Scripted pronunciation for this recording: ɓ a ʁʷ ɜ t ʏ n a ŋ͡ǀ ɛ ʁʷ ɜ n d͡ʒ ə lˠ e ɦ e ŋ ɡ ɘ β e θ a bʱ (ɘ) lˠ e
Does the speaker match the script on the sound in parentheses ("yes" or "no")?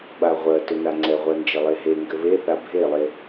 no